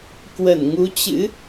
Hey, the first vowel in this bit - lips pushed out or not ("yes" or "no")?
no